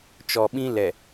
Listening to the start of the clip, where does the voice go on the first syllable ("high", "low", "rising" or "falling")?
low